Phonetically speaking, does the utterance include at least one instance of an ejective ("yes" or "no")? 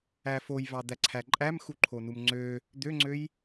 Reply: yes